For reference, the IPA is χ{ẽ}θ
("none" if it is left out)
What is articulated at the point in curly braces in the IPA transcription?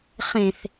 ẽ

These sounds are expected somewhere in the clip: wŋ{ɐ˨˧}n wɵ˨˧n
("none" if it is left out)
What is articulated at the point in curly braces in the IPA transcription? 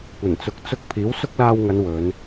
ɐ˨˧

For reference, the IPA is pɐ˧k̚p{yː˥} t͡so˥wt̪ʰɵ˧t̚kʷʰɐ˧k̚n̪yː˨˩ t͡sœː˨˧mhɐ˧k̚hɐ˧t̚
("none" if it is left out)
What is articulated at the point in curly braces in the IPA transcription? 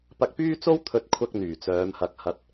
yː˥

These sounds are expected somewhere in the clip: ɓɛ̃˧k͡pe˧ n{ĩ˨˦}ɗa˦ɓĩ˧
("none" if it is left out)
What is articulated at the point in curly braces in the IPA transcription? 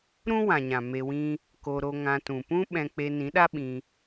ĩ˨˦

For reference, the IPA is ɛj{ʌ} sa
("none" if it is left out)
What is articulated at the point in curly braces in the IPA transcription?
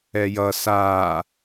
ʌ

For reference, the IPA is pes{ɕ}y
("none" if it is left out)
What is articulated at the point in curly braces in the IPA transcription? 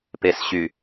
ɕ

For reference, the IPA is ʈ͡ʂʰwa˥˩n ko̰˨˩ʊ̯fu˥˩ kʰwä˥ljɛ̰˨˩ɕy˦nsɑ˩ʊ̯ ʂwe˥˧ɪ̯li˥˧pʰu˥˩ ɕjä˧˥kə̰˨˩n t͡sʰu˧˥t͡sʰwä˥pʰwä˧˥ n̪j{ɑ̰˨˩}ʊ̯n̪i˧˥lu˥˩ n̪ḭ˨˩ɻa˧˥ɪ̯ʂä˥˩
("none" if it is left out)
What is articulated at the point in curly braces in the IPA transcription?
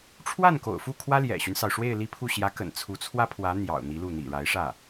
ɑ̰˨˩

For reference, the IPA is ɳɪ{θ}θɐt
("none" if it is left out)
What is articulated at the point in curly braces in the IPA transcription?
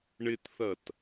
t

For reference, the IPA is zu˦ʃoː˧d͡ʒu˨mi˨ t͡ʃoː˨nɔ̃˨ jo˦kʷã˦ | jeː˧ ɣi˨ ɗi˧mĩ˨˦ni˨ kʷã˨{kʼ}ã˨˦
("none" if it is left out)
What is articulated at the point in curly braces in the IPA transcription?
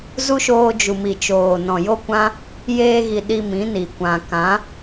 k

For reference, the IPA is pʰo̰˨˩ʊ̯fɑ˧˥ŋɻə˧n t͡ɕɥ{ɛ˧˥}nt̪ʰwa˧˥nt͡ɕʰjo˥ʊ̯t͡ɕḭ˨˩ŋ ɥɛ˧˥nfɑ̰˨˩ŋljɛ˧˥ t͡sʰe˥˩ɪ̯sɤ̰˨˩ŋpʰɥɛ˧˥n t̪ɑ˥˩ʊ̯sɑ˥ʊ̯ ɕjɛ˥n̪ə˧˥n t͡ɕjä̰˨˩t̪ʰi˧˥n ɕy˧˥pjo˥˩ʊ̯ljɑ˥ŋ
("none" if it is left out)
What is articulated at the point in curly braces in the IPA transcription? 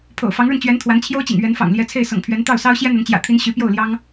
ɛ˧˥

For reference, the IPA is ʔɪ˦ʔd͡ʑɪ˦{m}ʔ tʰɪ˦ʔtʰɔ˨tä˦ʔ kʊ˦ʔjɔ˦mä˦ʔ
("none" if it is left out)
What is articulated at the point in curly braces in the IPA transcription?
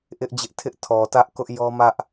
none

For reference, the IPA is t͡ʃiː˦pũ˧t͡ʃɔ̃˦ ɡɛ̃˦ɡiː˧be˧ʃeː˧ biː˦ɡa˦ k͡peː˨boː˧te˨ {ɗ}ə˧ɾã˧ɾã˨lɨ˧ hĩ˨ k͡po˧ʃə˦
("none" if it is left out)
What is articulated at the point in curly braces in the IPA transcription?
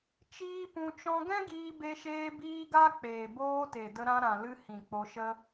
d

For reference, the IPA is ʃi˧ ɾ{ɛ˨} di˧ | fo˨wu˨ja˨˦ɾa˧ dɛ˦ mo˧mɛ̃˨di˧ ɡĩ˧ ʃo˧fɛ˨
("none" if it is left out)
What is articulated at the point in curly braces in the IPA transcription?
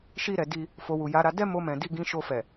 ɛ˨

